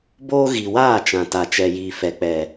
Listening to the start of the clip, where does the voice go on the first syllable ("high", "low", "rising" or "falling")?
high